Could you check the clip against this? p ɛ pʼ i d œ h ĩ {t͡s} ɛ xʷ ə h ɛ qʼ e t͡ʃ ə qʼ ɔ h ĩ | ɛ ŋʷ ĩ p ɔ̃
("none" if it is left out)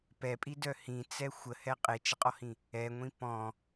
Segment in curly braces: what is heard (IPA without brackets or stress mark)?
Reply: t͡s